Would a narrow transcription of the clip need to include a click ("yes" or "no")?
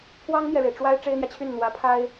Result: no